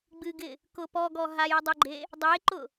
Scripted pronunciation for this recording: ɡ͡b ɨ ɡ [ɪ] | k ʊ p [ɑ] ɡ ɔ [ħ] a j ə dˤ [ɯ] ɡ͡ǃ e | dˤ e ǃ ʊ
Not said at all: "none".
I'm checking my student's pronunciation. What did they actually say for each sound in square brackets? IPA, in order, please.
ɪ, ɔ, ɦ, ʊ

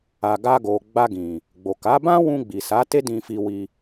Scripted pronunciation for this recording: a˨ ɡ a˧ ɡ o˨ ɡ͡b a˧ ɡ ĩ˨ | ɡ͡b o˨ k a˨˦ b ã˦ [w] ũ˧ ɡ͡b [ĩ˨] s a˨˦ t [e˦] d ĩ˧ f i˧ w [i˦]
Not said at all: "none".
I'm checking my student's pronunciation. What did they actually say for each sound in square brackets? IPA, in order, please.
w, i˨, e˦, i˧

